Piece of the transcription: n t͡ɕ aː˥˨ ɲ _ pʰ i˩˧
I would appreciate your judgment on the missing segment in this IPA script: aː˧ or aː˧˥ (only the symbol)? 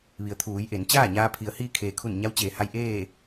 aː˧